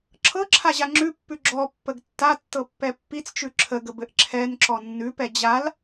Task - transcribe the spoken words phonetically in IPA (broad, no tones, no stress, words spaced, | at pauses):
ǁʰɤǁʰaʑa ŋ͡ǁʉpːʉ ɡ͡ǁɔpːəɡ tːatːɤpːɛ pːit͡st͡ʃʉ ǁʰəɡəbɘʔ ǁʰɛnǁɔ nːʉpɛ d͡ʑal